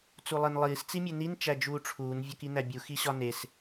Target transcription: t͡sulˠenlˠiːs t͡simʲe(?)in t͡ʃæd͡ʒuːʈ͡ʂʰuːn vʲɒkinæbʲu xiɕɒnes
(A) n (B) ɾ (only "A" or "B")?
A